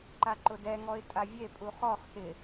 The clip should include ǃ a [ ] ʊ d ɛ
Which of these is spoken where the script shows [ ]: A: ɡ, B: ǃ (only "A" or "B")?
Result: B